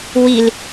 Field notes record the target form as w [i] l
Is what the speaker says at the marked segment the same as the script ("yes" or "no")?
yes